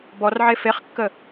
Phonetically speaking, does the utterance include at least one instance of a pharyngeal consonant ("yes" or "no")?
yes